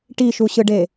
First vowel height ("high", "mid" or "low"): high